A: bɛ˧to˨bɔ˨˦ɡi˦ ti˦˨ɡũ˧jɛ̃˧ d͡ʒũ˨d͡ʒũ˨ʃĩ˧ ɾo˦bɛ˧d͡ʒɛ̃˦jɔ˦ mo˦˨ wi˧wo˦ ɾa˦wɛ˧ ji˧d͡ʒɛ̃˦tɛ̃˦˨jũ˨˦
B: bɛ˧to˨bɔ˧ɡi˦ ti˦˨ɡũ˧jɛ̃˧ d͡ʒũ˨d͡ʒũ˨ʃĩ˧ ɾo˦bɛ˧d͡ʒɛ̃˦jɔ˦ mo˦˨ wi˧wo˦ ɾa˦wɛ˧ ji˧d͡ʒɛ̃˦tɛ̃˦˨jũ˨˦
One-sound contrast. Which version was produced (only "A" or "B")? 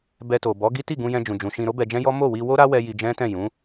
A